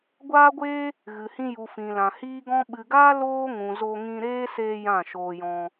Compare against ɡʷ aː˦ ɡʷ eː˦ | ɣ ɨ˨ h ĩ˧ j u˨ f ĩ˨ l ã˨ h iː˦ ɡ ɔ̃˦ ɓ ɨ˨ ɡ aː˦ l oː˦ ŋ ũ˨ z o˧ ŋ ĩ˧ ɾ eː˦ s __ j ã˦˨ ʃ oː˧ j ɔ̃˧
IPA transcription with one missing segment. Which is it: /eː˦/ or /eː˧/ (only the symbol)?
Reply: eː˧